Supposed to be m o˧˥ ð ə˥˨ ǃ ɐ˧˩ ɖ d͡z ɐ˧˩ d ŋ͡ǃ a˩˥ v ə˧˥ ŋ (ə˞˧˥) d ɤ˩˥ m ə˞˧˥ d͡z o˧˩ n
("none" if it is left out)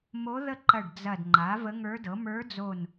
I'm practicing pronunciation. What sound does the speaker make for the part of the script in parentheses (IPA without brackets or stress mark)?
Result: ə˞˧˥